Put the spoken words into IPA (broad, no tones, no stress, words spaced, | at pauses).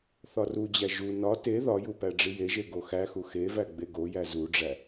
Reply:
θɒrud͡ʑæ ʒu nɒ te ðɒju pæɖ͡ʐijeʒe ɡoxæxu xevæ ɡ͡beɡojæ zuɖ͡ʐæ